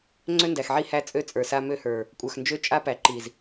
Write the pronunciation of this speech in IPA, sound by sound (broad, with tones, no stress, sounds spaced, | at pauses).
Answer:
ŋ͡ǀ ø˦ n d æ˨ x ʕ i˦ h æ˦ t͡sʼ ø˦ t͡sʼ ə˞˨ s a˦ m ø˦ h ə˞˨ | kʷʼ ə˞˨ x n d͡ʒ ø˦ t͡ʃʼ a˦ p æ˨ ǃ i˨ z